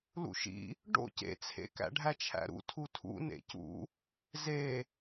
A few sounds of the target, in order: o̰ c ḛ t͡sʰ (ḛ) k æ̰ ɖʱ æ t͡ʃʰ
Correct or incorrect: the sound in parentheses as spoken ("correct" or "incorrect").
correct